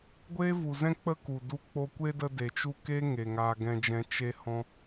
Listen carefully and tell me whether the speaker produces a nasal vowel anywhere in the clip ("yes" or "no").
yes